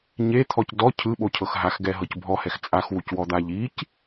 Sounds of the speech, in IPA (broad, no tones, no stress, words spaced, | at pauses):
ɲet̪ʰɔc dɔ cʰɯɓocʰɤx ɦaxɡɛɦɤc bʱɔhɛx t͡sʼaxwucwɔd̪a ʎic